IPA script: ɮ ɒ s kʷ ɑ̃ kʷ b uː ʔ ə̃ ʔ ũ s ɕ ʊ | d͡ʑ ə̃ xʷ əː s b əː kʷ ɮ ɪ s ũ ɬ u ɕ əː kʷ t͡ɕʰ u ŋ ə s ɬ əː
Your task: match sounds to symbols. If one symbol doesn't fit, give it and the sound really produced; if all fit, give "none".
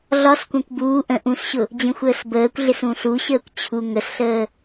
none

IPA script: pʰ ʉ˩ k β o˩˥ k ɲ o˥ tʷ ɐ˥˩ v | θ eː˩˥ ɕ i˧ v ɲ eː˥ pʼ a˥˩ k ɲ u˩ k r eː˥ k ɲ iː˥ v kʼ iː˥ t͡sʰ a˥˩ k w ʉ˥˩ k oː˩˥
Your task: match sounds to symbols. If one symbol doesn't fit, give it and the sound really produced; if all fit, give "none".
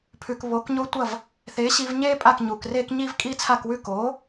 none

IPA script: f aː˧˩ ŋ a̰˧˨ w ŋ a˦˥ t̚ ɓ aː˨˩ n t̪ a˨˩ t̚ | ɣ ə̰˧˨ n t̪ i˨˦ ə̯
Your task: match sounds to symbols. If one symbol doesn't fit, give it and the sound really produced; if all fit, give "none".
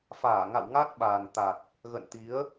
none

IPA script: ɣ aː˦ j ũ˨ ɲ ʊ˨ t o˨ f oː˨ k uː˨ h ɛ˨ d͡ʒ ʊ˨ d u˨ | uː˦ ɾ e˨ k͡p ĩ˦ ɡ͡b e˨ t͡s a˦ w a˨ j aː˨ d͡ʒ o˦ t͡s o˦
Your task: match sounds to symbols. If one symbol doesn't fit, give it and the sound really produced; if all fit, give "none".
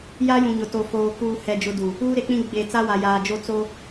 ɣ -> j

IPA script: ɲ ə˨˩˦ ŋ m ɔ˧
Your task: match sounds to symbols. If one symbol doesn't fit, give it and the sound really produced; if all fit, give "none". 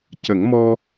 ɲ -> c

